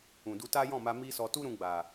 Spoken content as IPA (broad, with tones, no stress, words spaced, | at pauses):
ũ˨du˧ta˦ jɔ̃˦˨ma˧ mi˦sɔ˧ tu˦ɾũ˧ ɡ͡ba˨